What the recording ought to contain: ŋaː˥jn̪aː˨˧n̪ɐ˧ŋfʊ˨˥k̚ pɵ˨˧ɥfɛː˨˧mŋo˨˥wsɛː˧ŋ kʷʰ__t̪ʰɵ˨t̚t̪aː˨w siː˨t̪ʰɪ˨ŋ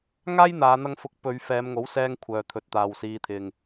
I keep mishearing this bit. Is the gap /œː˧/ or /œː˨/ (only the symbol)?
œː˨